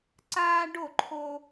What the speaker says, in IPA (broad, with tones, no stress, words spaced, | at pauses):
ǀaː˦ɖo˥˩ǃʰo˦